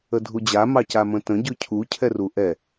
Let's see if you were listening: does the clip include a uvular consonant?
no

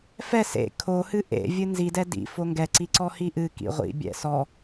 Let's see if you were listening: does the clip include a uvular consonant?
yes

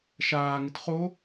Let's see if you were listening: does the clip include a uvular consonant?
yes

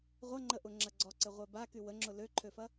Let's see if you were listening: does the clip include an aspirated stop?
yes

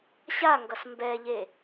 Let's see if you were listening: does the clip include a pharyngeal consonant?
no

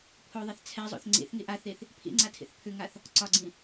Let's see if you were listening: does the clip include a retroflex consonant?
no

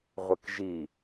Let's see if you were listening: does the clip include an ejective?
no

